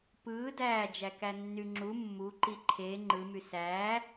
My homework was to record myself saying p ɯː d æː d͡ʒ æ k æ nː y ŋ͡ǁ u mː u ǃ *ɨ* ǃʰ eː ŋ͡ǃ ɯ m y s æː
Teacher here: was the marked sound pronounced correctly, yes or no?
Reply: no